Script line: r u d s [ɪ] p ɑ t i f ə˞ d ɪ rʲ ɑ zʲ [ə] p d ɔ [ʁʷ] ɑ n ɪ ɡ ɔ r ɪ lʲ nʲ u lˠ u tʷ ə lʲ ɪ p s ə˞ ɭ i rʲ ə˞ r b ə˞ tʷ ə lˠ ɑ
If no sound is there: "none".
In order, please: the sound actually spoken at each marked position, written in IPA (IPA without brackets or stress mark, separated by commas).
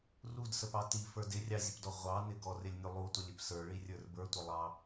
ə, ə, ʁʷ